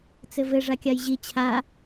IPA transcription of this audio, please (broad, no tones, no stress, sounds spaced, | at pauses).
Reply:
t͡s ɘ v ɘ ʐ a kʲ a j ʑ i t͡ɕʰ a